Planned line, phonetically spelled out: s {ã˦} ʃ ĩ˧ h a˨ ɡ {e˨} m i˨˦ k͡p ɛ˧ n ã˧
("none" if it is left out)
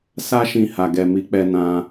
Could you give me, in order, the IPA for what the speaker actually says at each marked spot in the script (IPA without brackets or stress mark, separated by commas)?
a˦, ɛ˨